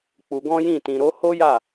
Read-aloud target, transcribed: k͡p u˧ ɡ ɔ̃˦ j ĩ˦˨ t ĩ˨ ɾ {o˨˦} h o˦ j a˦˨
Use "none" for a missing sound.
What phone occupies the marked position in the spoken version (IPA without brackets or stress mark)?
o˨˦